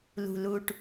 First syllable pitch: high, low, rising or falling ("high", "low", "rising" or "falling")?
low